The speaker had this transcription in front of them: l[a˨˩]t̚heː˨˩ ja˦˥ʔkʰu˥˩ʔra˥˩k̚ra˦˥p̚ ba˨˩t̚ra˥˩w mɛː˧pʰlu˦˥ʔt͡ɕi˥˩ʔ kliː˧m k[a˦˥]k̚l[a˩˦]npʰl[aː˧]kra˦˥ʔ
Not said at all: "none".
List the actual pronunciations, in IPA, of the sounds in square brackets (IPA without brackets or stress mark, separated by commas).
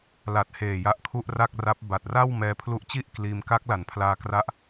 a˨˩, a˦˥, a˩˦, aː˧